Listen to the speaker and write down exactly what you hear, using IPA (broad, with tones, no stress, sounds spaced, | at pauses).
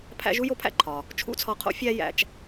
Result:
pʰ æ̰˥ ʒ u˥ j o˥ pʰ æ̰˥ ǃʰ ɒ˩ | t͡ʃʰ ṵ˥ t͡sʰ ɒ˧ qʰ o̰˥ fʲ æ˥ j æ̰˧ t͡ʃ